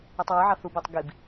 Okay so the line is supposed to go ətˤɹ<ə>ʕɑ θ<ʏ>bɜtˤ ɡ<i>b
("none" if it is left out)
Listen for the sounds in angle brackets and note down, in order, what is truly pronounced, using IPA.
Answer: ɪ, u, i

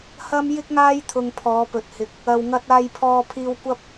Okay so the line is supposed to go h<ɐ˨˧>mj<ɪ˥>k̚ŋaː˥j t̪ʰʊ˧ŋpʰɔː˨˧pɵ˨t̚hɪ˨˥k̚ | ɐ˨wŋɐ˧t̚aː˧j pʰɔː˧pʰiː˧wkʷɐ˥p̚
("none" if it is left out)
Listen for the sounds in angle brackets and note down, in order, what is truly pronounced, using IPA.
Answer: ɐ˥, ɪ˥

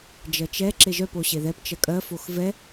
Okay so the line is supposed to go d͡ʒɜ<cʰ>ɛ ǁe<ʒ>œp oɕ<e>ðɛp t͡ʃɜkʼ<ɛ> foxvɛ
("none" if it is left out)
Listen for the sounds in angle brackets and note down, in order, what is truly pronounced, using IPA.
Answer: t͡ʃ, ʒ, e, ɜ

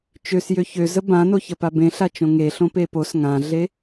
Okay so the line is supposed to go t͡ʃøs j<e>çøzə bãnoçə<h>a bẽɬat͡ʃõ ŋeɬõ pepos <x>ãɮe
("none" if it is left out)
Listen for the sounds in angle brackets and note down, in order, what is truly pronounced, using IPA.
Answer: ø, p, ŋ

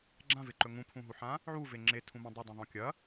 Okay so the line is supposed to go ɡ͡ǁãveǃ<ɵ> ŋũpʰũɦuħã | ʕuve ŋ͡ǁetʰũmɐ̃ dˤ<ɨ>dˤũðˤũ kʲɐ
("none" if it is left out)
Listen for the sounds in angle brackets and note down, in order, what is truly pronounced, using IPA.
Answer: ɵ, ɨ

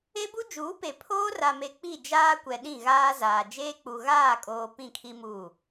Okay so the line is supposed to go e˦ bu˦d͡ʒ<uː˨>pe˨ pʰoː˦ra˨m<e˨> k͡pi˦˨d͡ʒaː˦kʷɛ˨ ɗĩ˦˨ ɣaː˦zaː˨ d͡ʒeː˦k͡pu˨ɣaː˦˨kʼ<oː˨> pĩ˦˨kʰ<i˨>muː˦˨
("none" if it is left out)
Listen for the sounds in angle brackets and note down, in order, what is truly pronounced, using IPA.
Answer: uː˨˦, e˨, oː˨, i˦

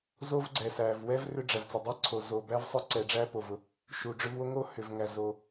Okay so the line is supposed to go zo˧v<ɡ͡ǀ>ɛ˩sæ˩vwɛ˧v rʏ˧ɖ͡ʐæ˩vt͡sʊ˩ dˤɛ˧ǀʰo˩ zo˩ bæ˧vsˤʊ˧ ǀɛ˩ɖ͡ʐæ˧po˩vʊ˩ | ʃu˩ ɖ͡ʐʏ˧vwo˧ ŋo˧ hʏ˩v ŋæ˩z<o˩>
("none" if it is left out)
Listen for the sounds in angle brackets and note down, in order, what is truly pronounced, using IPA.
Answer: ɡ͡ǀ, o˩

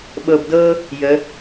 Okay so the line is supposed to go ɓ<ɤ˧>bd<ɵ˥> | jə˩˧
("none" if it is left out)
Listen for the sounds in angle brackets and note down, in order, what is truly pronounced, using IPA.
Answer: ɤ˧, ɤ˥

